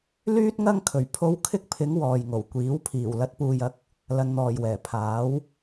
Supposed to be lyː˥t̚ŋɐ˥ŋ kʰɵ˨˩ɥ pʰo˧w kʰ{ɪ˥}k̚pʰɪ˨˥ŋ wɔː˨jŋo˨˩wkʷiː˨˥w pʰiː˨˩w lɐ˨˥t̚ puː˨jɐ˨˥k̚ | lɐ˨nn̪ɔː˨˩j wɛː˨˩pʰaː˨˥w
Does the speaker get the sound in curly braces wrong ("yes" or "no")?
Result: no